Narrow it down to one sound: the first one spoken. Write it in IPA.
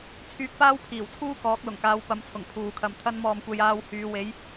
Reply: t͡sʰ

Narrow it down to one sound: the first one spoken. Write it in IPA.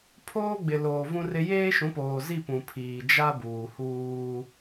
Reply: pʰ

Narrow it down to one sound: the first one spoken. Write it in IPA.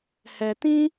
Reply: h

